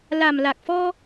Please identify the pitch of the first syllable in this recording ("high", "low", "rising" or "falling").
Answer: low